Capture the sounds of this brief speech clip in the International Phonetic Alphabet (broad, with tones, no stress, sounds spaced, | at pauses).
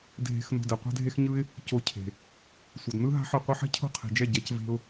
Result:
dʱ e̤˧ x n o̤˧ d ɛ˨ qʷ ɛ̤˦ dʱ e˦ x ɲ ɯ˦ ɪ̯ | c o˧ cʰ e̤˨ | sʷ ʌ˨ d n ɯ˦ ɦ a̤˦ ħ ɯ˧ qʷ ɯ˧ ħ ɛ̤˦ cʰ o̤˦ qʰ e̤˨ d͡ʒ ɛ˦˨ ɟ ɛ˧ c v e̤˧ ʊ̯